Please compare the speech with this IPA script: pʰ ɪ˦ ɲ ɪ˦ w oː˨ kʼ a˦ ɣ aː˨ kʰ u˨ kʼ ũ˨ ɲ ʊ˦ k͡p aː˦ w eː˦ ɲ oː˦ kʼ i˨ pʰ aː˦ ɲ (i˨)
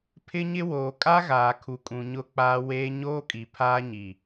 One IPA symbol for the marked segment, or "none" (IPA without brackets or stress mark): i˨